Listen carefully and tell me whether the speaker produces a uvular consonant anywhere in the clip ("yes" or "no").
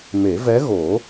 no